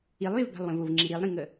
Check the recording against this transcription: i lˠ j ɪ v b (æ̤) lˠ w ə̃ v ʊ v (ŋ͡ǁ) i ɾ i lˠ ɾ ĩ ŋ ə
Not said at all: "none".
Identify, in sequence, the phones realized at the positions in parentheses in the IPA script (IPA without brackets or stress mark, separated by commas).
æ̤, ŋ͡ǁ